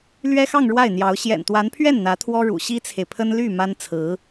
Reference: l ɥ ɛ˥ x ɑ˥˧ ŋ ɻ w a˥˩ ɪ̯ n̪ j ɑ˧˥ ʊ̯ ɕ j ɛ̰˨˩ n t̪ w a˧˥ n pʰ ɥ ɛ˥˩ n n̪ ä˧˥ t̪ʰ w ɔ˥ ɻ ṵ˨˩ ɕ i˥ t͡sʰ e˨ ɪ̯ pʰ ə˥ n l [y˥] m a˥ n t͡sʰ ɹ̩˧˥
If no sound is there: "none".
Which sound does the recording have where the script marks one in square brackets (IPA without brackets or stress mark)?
y˥˩